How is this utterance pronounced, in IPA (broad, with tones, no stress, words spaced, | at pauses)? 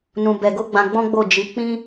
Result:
nũ˧ bɛ˧ɡo˦ɡ͡bã˧ ɡ͡bɔ̃˦ɡ͡bo˦˨ d͡ʒi˨˦ k͡pĩ˦